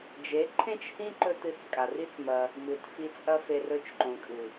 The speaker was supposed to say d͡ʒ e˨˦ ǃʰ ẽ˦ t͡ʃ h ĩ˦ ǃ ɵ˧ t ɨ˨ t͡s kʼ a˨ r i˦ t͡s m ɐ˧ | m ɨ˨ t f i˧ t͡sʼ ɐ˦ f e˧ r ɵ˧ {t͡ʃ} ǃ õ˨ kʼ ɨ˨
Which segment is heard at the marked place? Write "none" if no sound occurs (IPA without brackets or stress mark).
t͡ʃ